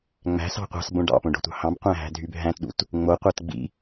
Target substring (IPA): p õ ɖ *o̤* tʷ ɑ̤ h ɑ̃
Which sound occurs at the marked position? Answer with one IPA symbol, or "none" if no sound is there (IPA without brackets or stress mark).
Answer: o̤